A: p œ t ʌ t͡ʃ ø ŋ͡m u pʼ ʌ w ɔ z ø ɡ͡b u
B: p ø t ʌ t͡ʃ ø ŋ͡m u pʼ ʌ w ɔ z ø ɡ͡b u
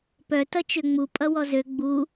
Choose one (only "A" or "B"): A